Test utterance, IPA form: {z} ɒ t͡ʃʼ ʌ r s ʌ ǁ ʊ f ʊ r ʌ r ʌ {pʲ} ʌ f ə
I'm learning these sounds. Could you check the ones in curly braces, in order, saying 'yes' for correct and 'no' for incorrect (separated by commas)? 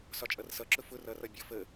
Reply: no, no